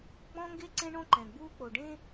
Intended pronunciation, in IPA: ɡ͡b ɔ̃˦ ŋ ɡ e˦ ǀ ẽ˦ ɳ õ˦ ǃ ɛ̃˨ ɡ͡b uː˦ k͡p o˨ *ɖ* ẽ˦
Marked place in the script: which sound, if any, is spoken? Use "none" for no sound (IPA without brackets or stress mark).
ɖ